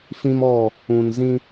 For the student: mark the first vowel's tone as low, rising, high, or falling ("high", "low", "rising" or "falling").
high